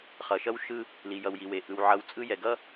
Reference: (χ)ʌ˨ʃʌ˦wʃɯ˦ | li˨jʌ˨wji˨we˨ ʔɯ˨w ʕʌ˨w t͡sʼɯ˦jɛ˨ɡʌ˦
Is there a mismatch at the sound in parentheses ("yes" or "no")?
no